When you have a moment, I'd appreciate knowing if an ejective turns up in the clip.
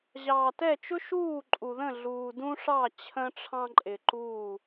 yes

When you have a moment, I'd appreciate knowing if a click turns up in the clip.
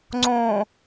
yes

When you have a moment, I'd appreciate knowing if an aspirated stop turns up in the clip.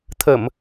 yes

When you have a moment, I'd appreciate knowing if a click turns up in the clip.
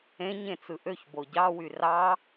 no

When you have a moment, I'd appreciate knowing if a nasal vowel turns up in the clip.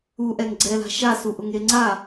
no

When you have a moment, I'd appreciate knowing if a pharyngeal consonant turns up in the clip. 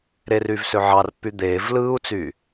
yes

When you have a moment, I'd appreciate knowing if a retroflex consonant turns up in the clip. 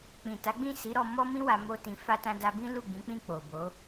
no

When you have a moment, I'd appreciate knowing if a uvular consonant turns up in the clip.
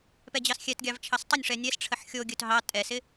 no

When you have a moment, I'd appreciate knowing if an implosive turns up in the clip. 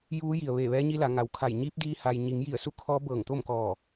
no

